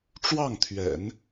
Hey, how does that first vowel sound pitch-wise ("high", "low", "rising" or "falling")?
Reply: falling